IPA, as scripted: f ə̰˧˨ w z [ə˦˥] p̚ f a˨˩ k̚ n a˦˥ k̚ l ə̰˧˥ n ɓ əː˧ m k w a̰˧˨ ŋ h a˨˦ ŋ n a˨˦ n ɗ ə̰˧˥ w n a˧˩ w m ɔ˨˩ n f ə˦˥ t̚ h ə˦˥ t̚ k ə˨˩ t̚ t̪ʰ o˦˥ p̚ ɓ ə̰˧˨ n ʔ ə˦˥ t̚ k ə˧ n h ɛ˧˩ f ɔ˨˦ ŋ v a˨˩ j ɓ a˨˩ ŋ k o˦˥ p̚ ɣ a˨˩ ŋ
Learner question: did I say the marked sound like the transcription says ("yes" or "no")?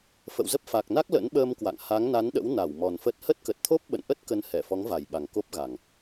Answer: yes